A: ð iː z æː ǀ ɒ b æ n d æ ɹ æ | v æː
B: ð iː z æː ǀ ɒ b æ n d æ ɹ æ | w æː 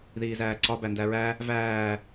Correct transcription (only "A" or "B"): A